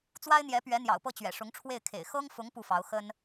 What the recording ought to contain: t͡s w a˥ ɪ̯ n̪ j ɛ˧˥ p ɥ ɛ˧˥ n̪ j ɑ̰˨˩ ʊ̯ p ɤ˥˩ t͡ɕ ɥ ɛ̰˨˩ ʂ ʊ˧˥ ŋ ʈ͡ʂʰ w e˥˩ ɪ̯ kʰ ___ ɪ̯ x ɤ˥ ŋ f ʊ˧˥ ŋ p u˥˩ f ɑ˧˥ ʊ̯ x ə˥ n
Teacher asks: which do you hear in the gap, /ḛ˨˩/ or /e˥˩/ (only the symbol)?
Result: ḛ˨˩